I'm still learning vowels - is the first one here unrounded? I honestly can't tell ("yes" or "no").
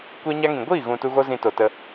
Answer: yes